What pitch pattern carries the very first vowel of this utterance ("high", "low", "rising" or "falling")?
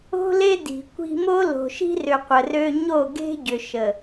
high